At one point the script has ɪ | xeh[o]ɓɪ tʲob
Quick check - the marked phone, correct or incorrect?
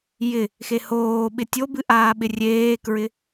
incorrect